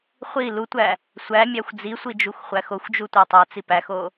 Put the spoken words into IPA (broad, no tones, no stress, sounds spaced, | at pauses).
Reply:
χʷ i l u tʷ æ | sʷ æ mʲ æ xʷ d͡z i sʷ i d͡ʒ u xʷ χʷ æ x o xʷ d͡ʒ u tʷ æ tˤ æ t͡s i p æ x o